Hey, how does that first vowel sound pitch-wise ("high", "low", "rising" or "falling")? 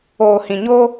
low